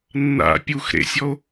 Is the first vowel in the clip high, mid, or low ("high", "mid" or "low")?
low